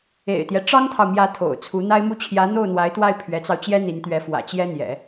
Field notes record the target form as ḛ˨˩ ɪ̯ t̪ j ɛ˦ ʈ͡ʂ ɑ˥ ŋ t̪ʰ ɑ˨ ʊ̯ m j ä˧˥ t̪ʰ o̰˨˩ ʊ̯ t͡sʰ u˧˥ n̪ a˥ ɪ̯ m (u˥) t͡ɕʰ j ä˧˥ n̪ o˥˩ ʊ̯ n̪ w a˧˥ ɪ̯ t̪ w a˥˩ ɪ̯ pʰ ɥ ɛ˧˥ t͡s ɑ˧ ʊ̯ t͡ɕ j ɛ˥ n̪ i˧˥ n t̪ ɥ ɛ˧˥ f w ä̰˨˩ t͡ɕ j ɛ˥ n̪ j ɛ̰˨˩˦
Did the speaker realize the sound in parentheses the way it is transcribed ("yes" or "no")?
yes